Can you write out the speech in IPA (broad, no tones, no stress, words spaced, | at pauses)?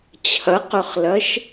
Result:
t͡ɕʰɐqɵχlɐʃ